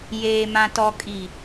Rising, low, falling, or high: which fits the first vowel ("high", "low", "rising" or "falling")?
low